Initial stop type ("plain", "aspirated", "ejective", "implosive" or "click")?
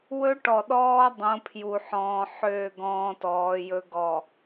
plain